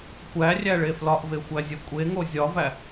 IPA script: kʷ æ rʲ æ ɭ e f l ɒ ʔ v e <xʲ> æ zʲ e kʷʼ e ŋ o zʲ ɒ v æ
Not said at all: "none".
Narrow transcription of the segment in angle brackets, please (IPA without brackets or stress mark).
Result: xʷ